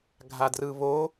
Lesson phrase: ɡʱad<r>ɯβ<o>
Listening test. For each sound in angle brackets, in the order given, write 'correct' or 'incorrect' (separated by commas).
correct, correct